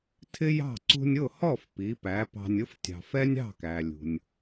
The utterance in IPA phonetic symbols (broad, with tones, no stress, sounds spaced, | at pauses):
tʰ ɪ˥ j ɑ̤˥˩ ǀ ṳ˧ nʲ ʊ˥˩ h ɔ˥˩ f p i˩˥ p æ˩˥ p ɑ̤˧ nʲ ʊ˥ f tʲ ɑ̤˩ f ɛ˥ nʲ ɑ̤˥˩ k æ˩ lʲ ṳ˩ nʲ